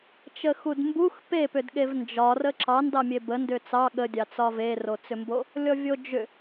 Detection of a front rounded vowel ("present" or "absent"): present